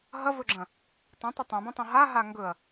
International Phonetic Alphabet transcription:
ɦ ɐ v ɵ ɡ͡ǁ ɐ̃ | tˤ õ tˤ ə tˤ ɐ̃ b ɐ̃ tˤ ɐ̃ ɦ a ɦ a ŋ ɡ ɵ ɐ̯

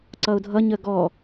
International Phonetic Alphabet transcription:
ǀ ʌ ʊ̯ dʱ ʌ ɲ ə ɡ ɔ

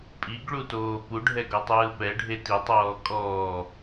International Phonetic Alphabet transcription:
pʼ i ɡ ɭ u t oː p u ɖʱ ɛ ɡ ɔ tˤ ɯː p ɛ ɖʱ e t i tˤ ɔː kʼ ɔː

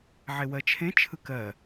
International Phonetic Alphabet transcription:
ʕ e w ɜ t͡ʃʰ ẽ t͡ʃʰ ɯ k ɜ

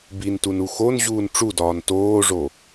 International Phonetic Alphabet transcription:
b i n t u n u x o n ʑ uː n ʈ͡ʂ u d ɒː n t oː ʐ o

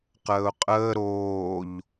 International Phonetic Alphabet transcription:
q əː ʊ̯ qʼ əː ɾ oː ʎ

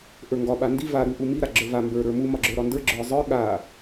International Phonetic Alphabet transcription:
ʔ ə˞ ŋ ɡ ɒ ɓ a n d i v a ɾ u ʔ u m i ɾ a ɡ͡ǁ ə˞ v a m b ə˞ ɾ ə˞ m u m ɒ ɡ͡ǁ ə˞ ɾ ɒ n d ə˞ ɡ͡ǁ ə˞ zˤ ə˞ ɠ a

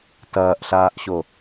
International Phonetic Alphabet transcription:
t ɐː ʔ ɬ aː ʔ ɕ o

